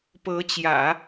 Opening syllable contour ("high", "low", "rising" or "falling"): rising